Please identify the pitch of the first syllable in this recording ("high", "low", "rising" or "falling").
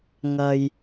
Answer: low